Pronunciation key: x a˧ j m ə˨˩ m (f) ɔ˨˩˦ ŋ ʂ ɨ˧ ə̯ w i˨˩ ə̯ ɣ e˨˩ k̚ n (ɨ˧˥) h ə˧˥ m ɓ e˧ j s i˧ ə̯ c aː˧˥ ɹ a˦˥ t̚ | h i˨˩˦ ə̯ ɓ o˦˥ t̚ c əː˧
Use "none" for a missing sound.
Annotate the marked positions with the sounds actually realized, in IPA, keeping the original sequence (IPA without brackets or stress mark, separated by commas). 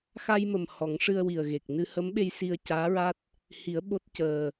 h, ɨ˧